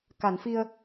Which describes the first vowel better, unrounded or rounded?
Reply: unrounded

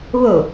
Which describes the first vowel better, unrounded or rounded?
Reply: rounded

